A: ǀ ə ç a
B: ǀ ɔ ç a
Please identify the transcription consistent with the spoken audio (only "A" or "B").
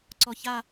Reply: B